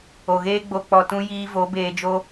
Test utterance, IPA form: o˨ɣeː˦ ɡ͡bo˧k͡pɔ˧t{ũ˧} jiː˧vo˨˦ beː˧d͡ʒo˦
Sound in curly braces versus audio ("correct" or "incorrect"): incorrect